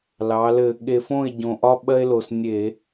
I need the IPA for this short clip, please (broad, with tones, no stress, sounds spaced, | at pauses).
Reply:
l ɑ˩˧ l ɘ˧˩˧ ɠ e˨˩ f õ˥˩ e̯ ɟ õ˨˩ ʔ ɒ˦ ɓ ɜ˦ e̯ l o˨˩ s nʲ e˧˩˧